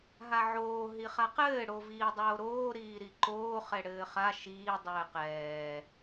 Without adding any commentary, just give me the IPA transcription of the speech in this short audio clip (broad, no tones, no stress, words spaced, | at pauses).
ɦaʕoː ɦiχaqɘː ɽoviːdˤoːɾoː ɾiːɾiǃoː χɛɽɘːχa ʃiː dˤɘːqɛː